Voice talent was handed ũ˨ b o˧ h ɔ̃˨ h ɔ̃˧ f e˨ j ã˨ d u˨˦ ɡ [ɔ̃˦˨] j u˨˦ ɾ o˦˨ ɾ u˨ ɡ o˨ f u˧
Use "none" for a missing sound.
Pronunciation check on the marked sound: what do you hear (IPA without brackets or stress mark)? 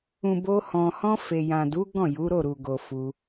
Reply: ɔ̃˦˨